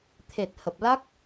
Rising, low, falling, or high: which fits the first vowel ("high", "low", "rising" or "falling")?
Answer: low